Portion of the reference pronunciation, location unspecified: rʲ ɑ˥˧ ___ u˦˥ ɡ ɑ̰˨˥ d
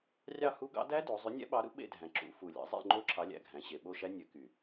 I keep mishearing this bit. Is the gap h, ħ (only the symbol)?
h